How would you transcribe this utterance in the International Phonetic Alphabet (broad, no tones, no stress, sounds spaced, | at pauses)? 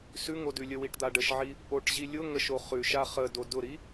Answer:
s ʉ ŋ o d ʉ lʲ ə w i ʈ d̪ a ɖ ə ʃ ʕ i | ʔ o ʈ ʑ i lʲ ʊ ŋ ə ʃ o χ ʉ ʃ a χ ə d o d ʊ ɾ i